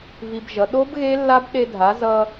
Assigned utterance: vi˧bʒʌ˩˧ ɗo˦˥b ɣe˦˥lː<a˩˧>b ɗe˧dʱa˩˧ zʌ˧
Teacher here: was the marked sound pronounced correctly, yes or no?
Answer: no